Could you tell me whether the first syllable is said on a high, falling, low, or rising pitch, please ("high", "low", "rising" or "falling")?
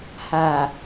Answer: low